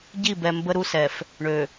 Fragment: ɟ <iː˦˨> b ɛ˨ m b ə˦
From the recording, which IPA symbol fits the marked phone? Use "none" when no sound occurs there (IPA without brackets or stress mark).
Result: i˦˨